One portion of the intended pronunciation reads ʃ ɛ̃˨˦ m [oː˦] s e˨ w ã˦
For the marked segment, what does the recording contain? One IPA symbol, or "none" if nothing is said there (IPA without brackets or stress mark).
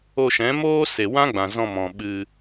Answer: oː˦